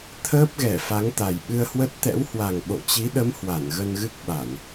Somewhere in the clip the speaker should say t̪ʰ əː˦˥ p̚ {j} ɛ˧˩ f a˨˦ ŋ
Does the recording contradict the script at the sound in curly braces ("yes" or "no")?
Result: yes